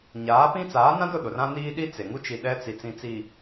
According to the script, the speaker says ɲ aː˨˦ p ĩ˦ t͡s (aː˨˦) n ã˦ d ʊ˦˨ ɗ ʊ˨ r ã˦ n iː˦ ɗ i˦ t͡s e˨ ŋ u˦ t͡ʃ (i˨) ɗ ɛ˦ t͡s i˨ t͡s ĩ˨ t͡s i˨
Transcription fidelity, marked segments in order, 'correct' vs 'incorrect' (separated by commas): correct, correct